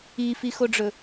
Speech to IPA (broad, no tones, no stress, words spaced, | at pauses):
ifixoɖ͡ʐɵ